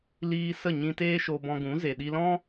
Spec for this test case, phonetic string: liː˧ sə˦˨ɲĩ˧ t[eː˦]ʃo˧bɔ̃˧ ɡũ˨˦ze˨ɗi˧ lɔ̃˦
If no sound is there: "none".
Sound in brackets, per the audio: eː˦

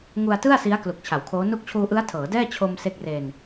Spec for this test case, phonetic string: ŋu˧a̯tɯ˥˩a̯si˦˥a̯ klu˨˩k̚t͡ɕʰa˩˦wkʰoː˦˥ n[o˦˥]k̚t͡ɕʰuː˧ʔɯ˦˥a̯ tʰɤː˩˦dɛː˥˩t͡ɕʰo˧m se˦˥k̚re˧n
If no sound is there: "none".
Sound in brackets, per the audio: u˦˥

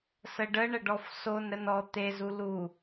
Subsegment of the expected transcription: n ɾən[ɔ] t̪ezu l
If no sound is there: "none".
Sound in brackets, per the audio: ɔ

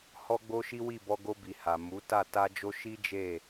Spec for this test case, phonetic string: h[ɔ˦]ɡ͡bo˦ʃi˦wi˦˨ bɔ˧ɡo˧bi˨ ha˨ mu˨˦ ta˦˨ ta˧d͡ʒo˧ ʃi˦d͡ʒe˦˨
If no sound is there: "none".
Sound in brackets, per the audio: ɔ˦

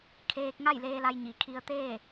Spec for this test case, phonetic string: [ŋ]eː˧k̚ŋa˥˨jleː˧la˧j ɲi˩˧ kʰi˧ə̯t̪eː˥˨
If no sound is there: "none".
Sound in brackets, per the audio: kʰ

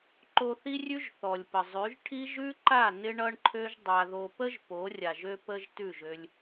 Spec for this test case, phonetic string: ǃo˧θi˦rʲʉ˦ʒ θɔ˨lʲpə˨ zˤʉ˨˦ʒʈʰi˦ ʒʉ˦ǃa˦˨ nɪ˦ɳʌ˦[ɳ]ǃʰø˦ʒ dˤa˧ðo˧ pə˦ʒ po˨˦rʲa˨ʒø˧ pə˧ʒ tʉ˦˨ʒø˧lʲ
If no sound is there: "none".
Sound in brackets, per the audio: ɳ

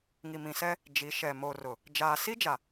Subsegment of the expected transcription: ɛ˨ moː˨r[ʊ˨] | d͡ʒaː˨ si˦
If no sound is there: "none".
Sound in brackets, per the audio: ʊ˨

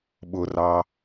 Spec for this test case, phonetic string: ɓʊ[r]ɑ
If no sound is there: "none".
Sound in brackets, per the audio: r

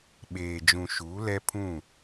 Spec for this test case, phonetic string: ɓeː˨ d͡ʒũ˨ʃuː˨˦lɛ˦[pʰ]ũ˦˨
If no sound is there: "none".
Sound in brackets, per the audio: pʰ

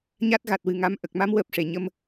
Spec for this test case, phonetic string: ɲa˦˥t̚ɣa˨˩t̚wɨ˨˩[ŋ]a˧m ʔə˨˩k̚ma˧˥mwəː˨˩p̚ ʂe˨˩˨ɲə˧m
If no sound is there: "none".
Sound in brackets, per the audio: ŋ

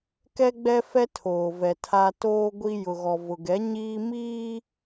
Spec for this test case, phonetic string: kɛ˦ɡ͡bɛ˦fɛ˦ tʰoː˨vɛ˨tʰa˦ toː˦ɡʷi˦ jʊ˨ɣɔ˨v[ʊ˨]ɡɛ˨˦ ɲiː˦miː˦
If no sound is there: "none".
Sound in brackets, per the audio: ʊ˨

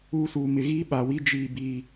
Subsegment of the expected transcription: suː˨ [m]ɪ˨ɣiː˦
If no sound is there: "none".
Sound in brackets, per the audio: m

